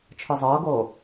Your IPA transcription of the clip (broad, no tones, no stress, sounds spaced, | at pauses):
t͡ʃʰ ɯ zˤ ɤː ɡ oː